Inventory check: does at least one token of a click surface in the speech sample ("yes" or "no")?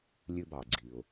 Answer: yes